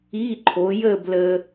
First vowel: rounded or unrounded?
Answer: unrounded